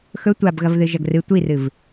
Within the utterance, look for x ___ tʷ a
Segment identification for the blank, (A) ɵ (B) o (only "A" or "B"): A